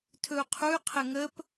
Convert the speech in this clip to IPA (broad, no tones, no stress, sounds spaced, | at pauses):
tʰ ɵ u̯ qʰ u y̯ qʰ ɘ ŋ ə p